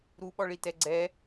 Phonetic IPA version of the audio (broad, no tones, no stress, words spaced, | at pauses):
ɾuɓɔɭitɛ ɡ͡ǀɛ